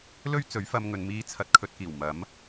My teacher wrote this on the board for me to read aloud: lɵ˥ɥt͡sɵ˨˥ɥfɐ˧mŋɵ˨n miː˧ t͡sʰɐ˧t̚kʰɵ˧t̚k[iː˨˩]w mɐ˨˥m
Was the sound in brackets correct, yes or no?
yes